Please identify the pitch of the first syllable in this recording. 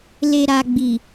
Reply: low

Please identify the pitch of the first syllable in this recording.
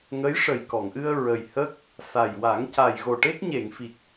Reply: rising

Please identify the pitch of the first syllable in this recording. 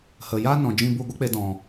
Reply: low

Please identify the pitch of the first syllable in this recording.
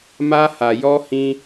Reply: high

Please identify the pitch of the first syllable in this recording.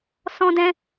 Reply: high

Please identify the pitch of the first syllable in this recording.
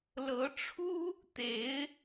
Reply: rising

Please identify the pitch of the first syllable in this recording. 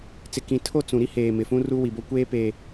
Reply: low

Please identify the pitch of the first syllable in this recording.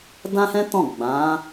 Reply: high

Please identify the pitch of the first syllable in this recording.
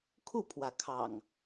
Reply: falling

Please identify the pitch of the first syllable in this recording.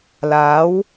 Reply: rising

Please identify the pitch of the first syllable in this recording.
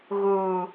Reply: high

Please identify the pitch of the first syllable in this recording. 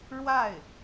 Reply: falling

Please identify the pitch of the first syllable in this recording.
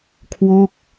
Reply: falling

